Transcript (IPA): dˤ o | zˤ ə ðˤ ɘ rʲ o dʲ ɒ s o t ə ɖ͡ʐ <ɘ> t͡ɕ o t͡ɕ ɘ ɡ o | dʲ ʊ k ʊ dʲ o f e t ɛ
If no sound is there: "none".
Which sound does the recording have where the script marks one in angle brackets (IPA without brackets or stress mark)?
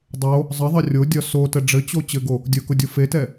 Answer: ɘ